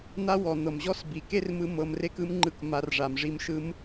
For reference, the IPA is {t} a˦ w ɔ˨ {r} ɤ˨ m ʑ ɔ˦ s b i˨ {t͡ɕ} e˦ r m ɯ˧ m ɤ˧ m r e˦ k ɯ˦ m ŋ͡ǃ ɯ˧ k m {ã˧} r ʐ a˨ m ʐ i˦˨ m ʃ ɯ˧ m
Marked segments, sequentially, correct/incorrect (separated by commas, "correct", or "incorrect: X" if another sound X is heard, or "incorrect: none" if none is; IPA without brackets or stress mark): incorrect: n̪, incorrect: n̪, incorrect: k, incorrect: a˧